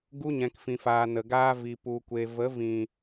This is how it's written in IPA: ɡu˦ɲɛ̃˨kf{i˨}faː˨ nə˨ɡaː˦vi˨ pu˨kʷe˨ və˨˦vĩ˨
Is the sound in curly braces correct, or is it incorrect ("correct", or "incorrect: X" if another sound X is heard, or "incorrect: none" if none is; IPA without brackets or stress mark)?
incorrect: ĩ˨